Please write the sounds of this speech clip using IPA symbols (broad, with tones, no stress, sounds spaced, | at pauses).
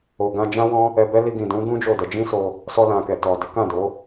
o˨ ɡ ã˧ d͡ʒ ã˦ w ɔ̃˦ | ɛ˧ b ɛ˦ l i˧ ɡ ĩ˨ d ũ˨˦ ɡ ũ˦ d͡ʒ o˦˨ d ɛ˧ d͡ʒ ĩ˦ s o˧ | s ɔ˧ l ã˨ k ɛ˨ t ɔ˨ d e˨˦ k ã˦˨ d o˨˦